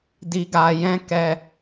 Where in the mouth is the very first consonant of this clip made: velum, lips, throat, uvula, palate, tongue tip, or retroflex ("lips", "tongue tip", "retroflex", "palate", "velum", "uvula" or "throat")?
tongue tip